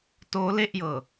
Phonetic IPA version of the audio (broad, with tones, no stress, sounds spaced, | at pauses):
t oː˦˥ l e˥˩ ʔ j ɤː˨˩